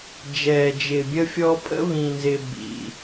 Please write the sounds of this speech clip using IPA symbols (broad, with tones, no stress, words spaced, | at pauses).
d͡ʒɛː˨d͡ʒɪː˨bʲə˦fʲɔ˦ pʼə̰˦βĩ˨nzɪ˨ bḭ˨